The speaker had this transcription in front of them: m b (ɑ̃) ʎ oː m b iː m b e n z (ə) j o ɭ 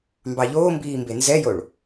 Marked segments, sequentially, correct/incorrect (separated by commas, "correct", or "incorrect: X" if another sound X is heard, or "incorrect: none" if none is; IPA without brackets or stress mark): incorrect: ɑ, incorrect: ɛ